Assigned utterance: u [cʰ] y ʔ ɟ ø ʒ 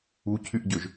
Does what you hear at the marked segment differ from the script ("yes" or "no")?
no